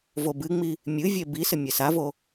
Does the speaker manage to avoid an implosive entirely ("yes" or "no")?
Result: yes